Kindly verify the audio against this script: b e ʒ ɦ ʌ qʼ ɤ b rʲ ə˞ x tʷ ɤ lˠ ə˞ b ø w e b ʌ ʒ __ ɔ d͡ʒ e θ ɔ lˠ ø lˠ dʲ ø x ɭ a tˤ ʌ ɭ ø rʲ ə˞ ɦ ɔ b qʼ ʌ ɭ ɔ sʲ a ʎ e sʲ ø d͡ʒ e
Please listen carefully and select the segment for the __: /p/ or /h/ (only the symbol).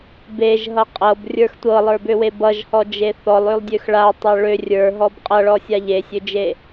h